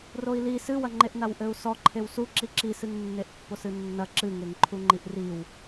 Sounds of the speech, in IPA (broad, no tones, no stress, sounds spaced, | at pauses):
r o i̯ l i s ɨ w ɐ ŋ͡ǃ e ʔ n a w ʔ ɘ u̯ s ɔ ǃʰ e w s u ǁ i ǁ i s ɨ ŋ nː e ʔ pː o s ɨ nː ɐ ǁ ɨ ŋ e ŋ ǃʰ u ŋ͡ǃ i ʔ r i w